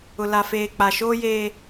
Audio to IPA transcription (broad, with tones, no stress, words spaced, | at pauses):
ʊ˨la˨feː˨ k͡pa˨ʃoː˦jeː˦